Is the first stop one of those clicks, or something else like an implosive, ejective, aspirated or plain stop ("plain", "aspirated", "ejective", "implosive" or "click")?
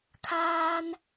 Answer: aspirated